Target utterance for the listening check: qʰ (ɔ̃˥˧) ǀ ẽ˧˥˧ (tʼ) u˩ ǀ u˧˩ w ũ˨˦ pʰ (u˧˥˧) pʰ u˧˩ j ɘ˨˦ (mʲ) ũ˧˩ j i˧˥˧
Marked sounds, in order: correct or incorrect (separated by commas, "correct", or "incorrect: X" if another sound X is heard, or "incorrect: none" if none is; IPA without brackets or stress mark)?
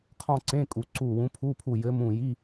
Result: correct, incorrect: kʼ, correct, incorrect: m